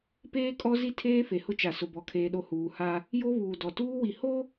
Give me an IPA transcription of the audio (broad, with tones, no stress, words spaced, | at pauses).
peː˦kʼɔ˦zi˦ tʰeː˦fe˨hʊ˦t͡ʃa˨ sʊ˨bɔ˨kʰeː˨ɗo˨ huː˨ha˦ | jo˦βuː˨ dɔ˨ tuː˦wi˨ ho˦